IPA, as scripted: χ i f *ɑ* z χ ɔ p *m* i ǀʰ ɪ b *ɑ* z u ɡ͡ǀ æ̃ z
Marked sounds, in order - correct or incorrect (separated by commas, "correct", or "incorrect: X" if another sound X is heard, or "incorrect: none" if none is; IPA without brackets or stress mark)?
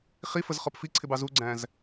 incorrect: ə, incorrect: f, correct